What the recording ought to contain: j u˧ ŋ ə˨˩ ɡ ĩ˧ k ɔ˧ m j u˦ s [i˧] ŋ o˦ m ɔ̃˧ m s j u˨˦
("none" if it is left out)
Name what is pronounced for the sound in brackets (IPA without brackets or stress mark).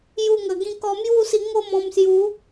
i˧